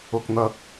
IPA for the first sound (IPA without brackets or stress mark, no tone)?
ʊ